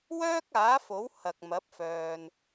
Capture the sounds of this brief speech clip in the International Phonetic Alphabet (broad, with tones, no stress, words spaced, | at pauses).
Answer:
wœː˥k̚aː˨˥fo˨˥w hɐ˨k̚mɐ˨˥p̚fœː˨n